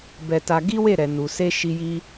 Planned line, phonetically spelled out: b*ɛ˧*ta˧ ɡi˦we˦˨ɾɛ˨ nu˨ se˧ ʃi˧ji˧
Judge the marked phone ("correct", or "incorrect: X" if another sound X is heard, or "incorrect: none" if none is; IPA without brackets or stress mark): correct